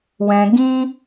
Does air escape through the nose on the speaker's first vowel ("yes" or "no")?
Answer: yes